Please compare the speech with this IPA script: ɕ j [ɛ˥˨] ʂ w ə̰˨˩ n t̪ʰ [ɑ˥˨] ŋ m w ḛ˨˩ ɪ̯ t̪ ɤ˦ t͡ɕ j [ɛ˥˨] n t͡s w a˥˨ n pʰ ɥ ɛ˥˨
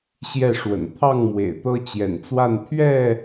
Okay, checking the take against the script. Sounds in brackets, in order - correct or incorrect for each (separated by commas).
correct, correct, incorrect